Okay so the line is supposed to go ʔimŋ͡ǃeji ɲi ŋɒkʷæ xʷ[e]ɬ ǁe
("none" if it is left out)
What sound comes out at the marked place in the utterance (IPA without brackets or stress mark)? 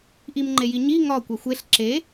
e